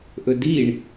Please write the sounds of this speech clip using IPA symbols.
ʔ ɵ d i ɳ

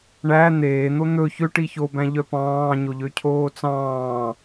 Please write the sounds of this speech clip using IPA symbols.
ɳ æ n̪ eː n̪ o n̪ ɵ ç ø ʈ i ç o b æ̃ ʎ œ p ɑ̃ː ɲ o ʎ ø cʰ oː t͡s ɑ̃ː

